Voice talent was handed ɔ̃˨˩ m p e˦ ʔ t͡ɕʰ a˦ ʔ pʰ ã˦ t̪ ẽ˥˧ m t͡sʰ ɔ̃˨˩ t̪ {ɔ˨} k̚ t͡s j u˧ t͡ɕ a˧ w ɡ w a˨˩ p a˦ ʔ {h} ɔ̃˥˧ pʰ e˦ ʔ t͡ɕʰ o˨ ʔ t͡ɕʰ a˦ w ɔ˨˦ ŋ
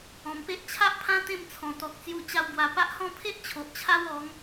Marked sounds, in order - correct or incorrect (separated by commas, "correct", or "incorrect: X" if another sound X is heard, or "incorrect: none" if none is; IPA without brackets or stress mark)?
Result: correct, correct